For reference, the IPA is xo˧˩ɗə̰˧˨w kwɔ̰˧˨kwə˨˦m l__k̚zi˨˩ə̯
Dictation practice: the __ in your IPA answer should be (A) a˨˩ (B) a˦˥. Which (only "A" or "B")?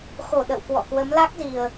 B